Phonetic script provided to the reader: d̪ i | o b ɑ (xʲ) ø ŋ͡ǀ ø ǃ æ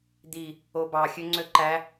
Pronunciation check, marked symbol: correct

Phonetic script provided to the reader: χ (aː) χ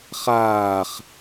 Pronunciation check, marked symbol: correct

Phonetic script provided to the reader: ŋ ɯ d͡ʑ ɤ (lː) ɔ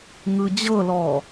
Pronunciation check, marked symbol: incorrect: l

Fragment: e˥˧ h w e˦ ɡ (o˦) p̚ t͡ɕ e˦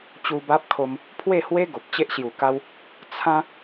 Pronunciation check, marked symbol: incorrect: o˨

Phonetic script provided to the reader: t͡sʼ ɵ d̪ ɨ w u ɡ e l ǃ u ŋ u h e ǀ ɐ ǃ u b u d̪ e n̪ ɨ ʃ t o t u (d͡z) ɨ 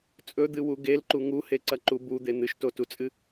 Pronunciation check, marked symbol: incorrect: t͡sʼ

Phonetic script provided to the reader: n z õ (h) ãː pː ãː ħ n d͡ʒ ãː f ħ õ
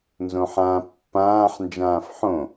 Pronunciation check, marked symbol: incorrect: ħ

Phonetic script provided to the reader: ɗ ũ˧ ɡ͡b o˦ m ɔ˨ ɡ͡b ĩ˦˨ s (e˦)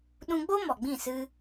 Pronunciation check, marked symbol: incorrect: ɨ˦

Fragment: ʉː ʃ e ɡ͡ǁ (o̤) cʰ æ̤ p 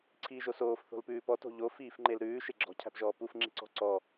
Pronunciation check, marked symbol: incorrect: ɔ̤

